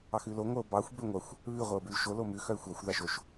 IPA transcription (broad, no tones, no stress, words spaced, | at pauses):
ɑxʉlo ŋʷœo̯bɑxʷ bøŋʷɑxʷ | βʉ ʁʷœo̯bʉlʃo lomʉ xœe̯xʷɑxʷ ðɑʃoʃ